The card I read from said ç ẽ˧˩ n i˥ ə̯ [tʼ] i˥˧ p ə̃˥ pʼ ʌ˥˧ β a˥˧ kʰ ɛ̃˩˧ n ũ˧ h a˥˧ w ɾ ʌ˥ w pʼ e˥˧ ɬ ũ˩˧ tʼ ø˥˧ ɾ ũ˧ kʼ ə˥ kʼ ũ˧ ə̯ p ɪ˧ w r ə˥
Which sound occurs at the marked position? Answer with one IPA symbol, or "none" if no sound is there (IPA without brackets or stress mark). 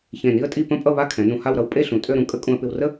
tʼ